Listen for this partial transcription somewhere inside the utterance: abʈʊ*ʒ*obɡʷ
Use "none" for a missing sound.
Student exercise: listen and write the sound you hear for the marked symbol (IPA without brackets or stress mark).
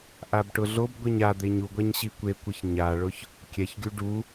ɮ